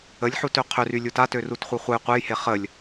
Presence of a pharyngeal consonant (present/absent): present